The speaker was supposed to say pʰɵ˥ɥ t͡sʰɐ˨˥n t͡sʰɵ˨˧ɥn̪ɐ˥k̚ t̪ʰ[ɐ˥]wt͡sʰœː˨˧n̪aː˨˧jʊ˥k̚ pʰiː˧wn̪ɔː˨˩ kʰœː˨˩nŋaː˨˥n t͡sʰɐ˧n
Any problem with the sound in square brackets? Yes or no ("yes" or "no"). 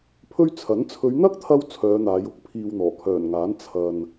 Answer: no